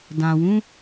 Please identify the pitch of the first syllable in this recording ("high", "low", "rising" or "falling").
low